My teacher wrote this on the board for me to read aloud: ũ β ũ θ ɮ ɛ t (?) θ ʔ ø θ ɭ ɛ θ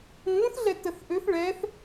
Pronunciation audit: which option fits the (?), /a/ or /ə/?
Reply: ə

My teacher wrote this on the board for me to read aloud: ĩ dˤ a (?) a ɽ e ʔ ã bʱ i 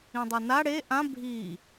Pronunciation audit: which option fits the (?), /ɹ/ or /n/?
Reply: n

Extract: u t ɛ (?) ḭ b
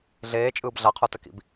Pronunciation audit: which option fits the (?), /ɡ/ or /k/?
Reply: k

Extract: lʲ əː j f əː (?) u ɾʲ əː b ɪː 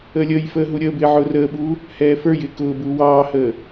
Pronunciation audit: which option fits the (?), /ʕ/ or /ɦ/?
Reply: ɦ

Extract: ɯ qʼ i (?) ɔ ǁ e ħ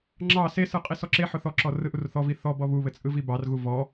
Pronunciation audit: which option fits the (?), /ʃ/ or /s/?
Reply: s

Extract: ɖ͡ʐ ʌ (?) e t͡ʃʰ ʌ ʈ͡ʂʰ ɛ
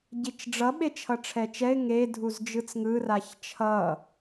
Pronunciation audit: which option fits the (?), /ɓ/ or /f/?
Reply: ɓ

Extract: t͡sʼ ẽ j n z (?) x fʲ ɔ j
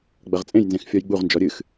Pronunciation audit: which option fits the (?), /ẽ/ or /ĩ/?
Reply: ẽ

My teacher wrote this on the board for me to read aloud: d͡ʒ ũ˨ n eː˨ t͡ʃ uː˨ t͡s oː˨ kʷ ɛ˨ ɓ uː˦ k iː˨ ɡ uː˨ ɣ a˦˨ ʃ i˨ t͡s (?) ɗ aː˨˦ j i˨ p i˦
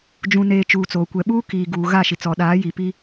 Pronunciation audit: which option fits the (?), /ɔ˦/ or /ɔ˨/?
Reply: ɔ˨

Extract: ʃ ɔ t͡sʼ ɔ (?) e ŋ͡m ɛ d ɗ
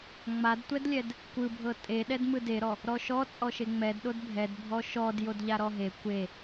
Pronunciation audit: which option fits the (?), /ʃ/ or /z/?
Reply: ʃ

